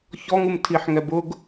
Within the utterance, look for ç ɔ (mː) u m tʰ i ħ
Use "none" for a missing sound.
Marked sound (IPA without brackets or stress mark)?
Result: ŋ